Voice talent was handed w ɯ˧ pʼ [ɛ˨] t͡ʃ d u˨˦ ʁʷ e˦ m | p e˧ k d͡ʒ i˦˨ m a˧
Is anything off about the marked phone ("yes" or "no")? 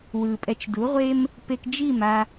yes